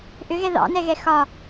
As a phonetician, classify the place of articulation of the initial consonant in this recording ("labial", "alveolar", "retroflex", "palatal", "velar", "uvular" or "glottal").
glottal